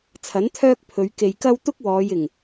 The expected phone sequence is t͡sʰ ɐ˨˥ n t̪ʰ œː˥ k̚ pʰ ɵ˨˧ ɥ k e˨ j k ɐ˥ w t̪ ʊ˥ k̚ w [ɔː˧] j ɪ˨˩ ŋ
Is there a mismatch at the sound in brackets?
yes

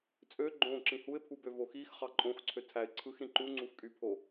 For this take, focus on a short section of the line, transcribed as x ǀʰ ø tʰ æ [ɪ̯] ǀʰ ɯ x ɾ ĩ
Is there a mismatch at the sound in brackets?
no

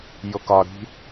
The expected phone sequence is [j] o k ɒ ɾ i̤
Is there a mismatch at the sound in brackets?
no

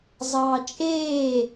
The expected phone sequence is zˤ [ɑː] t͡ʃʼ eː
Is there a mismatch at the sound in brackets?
no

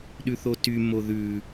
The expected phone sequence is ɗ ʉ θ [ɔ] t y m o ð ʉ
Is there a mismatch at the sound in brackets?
yes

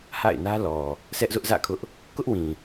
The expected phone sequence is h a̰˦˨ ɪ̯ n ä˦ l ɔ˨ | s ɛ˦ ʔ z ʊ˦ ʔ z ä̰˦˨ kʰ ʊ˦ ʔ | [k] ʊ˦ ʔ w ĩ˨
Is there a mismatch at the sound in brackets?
no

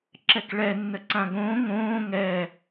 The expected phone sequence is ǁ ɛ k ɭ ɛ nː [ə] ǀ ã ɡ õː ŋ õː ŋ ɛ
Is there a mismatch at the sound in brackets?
no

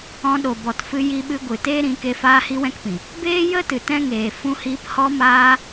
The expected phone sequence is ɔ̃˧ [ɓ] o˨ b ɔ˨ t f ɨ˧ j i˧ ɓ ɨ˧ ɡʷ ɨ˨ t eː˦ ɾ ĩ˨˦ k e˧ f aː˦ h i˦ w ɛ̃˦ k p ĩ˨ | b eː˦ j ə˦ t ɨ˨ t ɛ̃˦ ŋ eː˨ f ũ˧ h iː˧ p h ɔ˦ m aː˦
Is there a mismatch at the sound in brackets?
yes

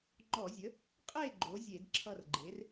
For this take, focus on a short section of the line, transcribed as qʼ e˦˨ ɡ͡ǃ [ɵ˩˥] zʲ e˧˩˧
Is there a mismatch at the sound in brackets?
yes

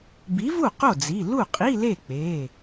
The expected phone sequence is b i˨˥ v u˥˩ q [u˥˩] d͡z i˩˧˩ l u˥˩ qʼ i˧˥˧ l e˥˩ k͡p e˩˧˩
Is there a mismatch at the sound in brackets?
yes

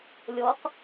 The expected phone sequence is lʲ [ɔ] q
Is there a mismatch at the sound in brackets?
no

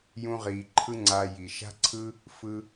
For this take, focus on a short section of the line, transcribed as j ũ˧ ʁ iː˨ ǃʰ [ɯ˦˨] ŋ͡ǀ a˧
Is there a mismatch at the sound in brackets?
yes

